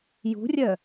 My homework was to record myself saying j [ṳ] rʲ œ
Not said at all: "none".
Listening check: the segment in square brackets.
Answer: ṳ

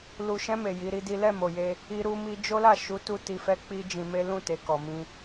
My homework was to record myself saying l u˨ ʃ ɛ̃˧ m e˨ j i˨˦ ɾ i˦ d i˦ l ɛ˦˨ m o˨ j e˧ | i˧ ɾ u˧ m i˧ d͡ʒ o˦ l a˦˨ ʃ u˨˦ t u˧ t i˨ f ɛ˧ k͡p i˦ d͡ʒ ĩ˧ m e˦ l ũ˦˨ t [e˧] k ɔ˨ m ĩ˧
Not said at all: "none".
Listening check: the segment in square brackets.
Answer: e˨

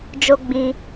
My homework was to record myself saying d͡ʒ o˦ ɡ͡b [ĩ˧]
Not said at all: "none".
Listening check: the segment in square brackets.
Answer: ĩ˧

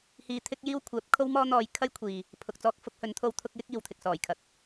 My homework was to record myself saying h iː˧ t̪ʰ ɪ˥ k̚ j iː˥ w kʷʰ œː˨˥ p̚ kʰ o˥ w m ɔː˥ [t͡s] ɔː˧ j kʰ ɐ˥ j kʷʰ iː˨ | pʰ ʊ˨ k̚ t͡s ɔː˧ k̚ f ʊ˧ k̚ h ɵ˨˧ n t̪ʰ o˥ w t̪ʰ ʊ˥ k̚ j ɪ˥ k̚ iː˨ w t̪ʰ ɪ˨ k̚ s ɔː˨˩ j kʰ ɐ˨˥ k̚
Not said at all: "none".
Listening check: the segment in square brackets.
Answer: n̪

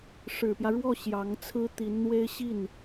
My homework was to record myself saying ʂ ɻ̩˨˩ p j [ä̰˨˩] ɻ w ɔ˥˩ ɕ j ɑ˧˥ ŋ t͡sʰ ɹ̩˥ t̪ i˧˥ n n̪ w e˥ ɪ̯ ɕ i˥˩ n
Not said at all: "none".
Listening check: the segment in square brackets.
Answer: ä˦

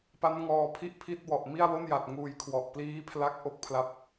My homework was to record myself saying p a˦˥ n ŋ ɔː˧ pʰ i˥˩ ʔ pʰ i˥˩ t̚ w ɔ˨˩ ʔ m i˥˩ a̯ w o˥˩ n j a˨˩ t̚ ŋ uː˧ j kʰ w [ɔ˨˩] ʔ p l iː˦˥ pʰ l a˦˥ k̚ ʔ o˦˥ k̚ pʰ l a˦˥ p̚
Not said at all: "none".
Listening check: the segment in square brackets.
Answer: ɔ˨˩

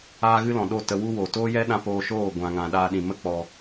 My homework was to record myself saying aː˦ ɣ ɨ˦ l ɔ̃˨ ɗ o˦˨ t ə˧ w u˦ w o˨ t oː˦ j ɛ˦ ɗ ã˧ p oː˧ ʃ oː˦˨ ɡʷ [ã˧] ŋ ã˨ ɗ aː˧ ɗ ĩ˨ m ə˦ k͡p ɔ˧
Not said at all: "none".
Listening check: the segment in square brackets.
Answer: ã˨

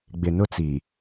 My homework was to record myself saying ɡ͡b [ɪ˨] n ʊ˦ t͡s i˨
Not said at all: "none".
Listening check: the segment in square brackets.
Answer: ɪ˨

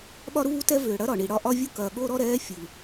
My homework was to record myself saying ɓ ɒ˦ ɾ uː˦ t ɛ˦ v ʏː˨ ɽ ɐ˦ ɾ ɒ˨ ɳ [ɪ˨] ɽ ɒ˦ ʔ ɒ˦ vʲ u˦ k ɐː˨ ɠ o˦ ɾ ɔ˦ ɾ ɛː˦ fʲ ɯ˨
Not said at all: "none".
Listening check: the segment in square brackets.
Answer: i˨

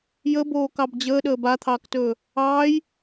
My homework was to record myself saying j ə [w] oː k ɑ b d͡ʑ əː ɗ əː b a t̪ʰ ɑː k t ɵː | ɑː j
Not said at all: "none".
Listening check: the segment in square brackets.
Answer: b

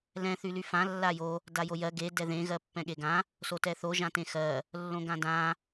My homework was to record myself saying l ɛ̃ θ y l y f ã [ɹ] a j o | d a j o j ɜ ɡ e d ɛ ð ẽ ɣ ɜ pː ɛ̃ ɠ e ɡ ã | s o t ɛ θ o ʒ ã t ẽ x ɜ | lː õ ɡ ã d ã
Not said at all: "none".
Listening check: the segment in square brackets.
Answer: lː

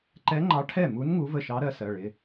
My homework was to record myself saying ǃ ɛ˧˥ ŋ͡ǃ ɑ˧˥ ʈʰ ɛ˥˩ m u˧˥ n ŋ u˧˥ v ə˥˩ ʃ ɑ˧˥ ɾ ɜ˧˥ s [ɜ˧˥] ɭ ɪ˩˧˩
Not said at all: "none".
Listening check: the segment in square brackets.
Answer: ɜ˩˧˩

